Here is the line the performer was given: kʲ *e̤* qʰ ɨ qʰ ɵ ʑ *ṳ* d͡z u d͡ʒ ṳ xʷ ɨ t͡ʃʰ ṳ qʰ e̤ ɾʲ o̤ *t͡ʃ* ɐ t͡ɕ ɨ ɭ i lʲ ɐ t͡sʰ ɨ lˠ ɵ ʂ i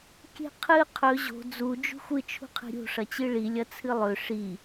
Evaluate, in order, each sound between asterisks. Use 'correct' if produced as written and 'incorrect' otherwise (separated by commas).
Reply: correct, incorrect, incorrect